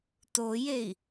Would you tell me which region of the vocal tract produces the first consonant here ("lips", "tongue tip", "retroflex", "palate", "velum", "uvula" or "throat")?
tongue tip